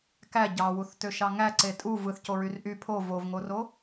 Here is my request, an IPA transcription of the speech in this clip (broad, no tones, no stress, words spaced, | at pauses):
kæ ɟɑwuθtøʃɑ ŋæǀe tʼu vɯθcoɹyr ʔy pʰo vovŋoro